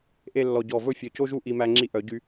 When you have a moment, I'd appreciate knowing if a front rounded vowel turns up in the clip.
yes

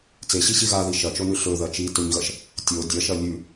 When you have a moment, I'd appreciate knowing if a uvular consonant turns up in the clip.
no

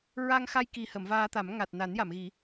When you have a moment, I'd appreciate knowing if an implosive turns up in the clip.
no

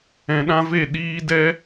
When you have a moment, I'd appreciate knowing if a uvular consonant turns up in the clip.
no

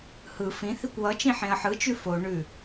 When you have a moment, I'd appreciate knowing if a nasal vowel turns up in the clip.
yes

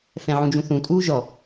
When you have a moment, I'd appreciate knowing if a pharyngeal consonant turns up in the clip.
yes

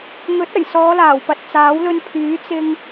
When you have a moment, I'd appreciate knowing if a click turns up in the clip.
no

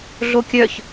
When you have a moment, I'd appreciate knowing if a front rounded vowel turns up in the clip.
yes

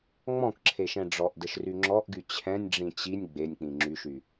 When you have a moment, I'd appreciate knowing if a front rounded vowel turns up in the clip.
yes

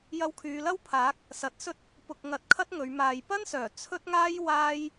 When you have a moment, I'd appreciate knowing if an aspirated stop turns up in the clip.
yes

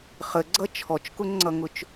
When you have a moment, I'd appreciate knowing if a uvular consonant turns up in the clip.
yes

